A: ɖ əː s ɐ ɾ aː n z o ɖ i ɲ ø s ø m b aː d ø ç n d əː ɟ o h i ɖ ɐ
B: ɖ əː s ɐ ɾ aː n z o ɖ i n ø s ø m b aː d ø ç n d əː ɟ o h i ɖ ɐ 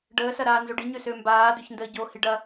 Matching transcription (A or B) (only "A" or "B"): A